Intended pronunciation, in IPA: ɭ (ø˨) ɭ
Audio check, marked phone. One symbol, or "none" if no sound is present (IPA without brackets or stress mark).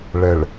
ɛ˨